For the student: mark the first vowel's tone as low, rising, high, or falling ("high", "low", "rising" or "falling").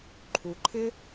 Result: low